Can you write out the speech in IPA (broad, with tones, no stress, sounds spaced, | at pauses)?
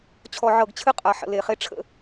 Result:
t͡ɕʰ ɔ˨ ʕ ɤ˨ ɡ t͡ɕʰ ɨ˦ qʼ a˨ ħ ə̰˨ l e˨ χ e˦ ʈ͡ʂʰ ə̰˦